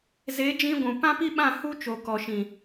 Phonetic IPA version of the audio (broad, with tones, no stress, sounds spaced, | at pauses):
z e˨˦ d͡ʒ ĩ˧ ɡʷ ũ˨ p ã˦ p i˦ ɓ ã˦˨ h u˦ t͡ʃ o˨ k ɔ˨ ʃ ĩ˨